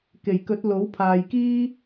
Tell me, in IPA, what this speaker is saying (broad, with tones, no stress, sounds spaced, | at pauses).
k e˨˩ j k ɵ˨˥ t̚ l o˨˥ w pʰ aː˨ j k iː˥